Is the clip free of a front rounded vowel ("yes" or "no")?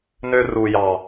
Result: no